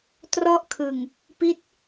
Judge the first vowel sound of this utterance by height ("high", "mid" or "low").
mid